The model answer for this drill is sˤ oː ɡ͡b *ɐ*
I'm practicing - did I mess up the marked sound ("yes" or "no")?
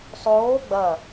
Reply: no